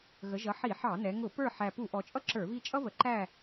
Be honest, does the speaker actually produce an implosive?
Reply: no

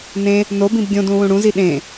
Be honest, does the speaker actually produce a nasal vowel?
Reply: yes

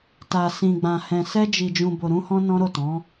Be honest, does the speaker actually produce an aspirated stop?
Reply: no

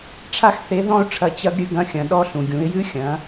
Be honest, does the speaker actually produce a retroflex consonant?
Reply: yes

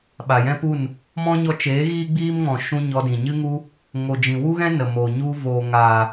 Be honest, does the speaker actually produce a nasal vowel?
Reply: yes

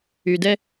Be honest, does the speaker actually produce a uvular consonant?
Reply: no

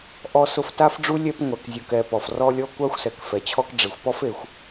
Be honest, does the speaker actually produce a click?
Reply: no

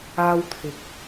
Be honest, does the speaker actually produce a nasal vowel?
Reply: no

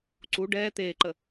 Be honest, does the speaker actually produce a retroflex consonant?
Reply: yes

